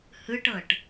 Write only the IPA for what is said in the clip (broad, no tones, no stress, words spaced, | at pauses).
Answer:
hɯʈɤʈ